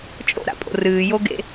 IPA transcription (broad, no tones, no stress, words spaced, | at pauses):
t͡ʃʼo̰ɾa̰pʼo̰ rɨːjoɡḛ